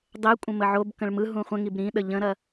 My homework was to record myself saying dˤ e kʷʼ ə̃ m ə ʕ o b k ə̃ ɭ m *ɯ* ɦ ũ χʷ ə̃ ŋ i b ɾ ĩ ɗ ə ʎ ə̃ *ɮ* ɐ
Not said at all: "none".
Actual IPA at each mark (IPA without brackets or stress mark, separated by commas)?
ɯ, ɾ